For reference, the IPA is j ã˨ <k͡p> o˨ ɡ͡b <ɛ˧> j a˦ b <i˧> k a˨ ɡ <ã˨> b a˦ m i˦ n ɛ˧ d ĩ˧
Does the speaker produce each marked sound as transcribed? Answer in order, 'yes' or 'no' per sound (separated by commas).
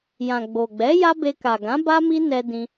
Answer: no, no, no, no